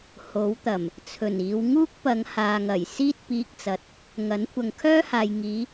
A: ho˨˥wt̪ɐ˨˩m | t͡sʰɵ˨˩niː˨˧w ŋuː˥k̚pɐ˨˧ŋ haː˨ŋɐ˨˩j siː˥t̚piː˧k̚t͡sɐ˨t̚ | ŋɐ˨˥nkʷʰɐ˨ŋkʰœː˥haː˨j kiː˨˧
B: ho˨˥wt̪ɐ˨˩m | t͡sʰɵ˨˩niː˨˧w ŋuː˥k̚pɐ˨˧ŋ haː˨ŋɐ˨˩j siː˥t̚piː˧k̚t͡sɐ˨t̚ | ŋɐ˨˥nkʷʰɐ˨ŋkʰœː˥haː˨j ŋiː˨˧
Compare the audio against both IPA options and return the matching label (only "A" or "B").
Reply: B